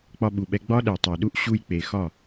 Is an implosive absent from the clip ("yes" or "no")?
no